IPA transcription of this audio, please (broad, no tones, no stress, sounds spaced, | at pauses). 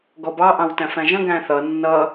ɡ ɔ b ɑ ʔ ɑ̃ w t æ̃ f æ̃ ʒ ə̃ ɡ æ̃ θ ʌ nː ʌ